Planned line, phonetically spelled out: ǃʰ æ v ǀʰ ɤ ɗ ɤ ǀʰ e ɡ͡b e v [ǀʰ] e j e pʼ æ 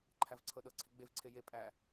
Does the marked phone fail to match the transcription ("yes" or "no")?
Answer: no